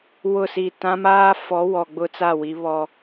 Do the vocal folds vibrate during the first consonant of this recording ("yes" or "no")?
yes